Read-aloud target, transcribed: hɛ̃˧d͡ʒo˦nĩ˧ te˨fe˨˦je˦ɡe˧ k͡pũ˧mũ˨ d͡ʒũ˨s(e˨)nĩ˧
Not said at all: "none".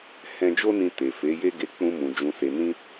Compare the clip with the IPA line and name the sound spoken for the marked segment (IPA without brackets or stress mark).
e˨